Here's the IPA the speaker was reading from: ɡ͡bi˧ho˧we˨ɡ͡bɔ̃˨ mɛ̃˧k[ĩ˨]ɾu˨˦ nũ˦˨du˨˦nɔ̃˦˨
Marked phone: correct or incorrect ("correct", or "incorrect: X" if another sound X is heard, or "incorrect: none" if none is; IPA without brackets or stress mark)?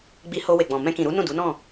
correct